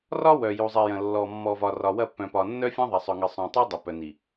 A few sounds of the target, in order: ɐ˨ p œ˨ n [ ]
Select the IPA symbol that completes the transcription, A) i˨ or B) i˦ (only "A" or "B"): A